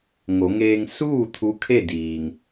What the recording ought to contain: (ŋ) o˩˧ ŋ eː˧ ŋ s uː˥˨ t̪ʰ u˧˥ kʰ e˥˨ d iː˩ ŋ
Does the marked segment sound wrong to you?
no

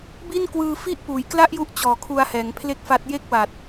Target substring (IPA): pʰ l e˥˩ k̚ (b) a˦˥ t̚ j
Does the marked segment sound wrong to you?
yes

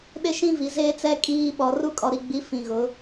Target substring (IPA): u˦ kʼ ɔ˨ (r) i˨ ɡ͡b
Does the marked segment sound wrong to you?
yes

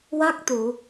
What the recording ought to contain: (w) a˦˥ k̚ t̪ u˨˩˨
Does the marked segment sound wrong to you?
no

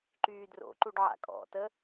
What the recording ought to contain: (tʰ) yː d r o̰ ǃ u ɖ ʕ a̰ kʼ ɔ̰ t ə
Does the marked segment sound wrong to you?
yes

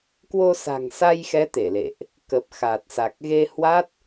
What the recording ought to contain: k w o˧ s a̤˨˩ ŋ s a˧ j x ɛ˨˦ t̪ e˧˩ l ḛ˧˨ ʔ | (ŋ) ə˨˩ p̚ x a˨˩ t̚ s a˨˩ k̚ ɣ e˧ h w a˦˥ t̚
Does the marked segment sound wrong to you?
yes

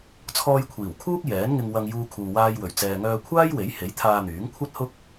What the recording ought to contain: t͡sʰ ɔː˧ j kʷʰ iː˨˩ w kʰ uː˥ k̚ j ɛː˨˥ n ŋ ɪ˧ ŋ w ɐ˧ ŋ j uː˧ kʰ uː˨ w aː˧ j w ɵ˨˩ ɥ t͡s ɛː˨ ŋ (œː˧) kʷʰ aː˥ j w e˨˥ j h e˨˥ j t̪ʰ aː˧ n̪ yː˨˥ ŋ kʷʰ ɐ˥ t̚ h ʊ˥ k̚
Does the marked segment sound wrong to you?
no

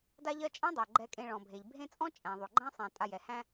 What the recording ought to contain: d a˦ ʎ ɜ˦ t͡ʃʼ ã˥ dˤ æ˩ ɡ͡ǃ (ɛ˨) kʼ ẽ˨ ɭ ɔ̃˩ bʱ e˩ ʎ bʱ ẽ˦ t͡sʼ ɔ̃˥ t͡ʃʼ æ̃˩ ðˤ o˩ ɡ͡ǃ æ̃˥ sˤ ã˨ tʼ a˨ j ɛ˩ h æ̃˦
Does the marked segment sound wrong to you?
no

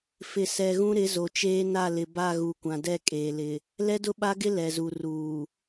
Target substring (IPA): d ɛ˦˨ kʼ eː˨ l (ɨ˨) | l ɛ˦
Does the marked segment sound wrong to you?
yes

